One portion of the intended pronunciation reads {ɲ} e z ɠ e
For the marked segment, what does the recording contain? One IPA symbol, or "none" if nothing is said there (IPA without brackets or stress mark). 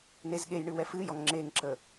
n